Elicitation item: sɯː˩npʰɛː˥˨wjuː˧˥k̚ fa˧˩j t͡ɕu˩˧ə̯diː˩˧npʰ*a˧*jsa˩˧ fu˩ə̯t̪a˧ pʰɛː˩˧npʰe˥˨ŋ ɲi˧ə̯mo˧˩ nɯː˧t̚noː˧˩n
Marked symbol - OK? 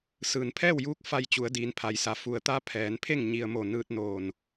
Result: no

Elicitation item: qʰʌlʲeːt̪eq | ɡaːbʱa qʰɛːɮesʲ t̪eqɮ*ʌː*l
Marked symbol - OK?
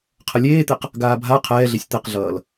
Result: yes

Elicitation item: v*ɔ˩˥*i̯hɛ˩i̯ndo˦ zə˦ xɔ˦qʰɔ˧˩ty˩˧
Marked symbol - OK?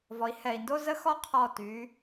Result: no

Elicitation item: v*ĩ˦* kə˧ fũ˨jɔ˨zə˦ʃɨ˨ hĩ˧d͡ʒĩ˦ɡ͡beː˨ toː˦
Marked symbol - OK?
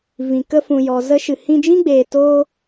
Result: no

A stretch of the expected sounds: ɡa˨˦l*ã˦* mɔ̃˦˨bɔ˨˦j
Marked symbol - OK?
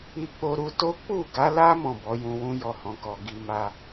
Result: no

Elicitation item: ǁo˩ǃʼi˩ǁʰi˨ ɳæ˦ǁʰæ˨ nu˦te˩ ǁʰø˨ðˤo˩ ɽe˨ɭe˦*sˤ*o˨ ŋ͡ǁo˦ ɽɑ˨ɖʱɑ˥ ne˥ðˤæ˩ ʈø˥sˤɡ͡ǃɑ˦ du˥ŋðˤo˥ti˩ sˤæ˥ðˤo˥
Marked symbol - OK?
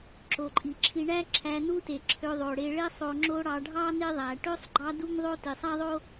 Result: yes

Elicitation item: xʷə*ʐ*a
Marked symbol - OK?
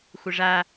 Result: yes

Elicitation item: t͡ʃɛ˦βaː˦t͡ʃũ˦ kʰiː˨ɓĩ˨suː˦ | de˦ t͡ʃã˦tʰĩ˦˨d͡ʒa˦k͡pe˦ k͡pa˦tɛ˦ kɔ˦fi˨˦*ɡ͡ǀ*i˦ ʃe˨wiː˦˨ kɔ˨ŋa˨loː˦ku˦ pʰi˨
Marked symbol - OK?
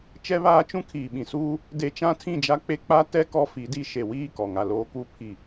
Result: no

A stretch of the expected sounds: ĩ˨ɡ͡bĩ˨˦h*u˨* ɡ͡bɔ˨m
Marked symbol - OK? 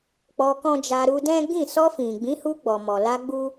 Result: no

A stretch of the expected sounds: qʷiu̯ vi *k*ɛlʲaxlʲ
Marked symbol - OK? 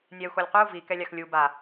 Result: yes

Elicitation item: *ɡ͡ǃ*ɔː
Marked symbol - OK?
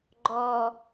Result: yes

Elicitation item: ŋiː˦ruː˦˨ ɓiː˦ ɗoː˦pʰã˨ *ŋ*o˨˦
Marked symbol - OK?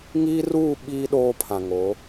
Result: yes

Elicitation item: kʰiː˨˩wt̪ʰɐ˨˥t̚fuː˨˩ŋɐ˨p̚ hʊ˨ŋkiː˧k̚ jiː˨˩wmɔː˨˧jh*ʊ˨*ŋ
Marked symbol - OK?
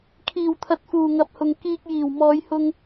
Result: no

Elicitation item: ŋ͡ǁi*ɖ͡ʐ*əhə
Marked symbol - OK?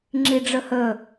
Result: yes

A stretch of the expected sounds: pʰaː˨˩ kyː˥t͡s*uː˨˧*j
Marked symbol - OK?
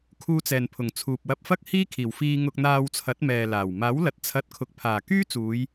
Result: yes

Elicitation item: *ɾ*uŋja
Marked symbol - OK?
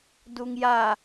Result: no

